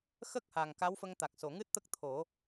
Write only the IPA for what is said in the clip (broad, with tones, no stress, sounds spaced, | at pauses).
x ə˦˥ k̚ h a˨˩ ŋ k a˧˥ w f ə˧ ŋ t̪ a˨˩ k̚ s o˨˩˨ ŋ ɨ˦˥ t̚ t̪ ə˦˥ k̚ t̪ʰ o˨˩˦